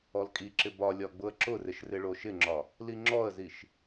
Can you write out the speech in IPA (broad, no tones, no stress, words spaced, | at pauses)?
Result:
ɔlkʼiǁɪ bɒlʲɒ ɡ͡bʊə̯ǁʊrɪʃ rɪɭoʃɪŋ͡ǁɒ | liŋ͡ǁɔə̯ziʃ